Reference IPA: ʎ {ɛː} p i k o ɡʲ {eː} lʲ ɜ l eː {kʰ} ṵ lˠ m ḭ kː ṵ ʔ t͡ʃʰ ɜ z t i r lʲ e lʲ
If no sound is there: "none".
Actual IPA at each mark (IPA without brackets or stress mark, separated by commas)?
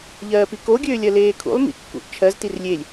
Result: ɜː, øː, kʰ